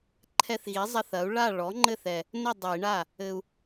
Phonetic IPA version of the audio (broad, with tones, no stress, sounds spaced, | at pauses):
ǃʰ ɛ˧ θ ɣ i˩˥ zˤ ɐ˧ θ ɐ˩˥ u̯ ɭ a˥˩ ɭ ɔ˩˥ ŋ͡ǃ ɘ˥˩ θ ɛ˧ | n ɘ˥˩ dˤ ɘ˨˩˦ i̯ ɳ a˥˩ | ɘ˧ u̯